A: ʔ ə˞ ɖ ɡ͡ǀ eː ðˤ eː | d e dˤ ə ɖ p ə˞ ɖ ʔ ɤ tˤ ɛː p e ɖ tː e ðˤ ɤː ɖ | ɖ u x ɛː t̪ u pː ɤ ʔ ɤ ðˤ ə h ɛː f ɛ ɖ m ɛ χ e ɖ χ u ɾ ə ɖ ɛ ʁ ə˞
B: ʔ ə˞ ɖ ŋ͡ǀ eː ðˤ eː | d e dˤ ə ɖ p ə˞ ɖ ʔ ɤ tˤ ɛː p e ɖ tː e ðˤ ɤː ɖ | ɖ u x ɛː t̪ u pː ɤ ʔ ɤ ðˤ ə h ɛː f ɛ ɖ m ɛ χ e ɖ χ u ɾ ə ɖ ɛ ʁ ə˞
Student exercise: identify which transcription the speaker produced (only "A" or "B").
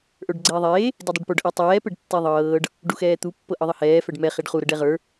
A